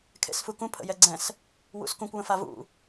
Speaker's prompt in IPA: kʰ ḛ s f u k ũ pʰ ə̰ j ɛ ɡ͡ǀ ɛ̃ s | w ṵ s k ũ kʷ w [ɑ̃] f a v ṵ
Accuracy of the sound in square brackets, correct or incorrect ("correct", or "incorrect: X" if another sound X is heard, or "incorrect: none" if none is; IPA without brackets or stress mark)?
incorrect: ə̃